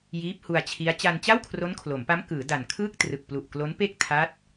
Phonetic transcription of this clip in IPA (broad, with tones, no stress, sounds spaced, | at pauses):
j iː˦˥ p̚ h u˧ a̯ t͡ɕʰ i˦˥ a̯ t͡ɕ a˧ n t͡ɕ a˥˩ w kʰ r o˦˥ n kʰ l o˩˦ m p a˦˥ m k ɯː˩˦ d a˨˩ n kʰ ɯː˥˩ k̚ t r ɯ˨˩ k̚ p l u˨˩ ʔ k l o˦˥ n p e˥˩ k̚ tʰ a˦˥ t̚